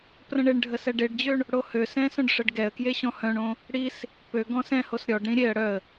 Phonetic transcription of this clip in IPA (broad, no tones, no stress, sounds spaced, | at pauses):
p r ə̃ ɳ e ɳ ɖʱ ə s ɛ ɖ e ɖ d͡ʑ ø ɳ | ɽ o h ø s ɛ̃ s œ̃ ɖ ʂ ə ɖ ɡ ɛ ə̯ k j e ɕ ɔ̃ h œ̃ ɳ õ | ɽ i s | p ø ɡ ɔ̃ s ɛ̃ h o s ɾʲ ɔ ɖ ɾ ĩ ɾʲ e ə̯ ɽ œ ə̯